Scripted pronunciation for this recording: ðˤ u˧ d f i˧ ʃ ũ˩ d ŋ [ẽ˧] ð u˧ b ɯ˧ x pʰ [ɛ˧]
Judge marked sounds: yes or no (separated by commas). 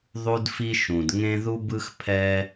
yes, yes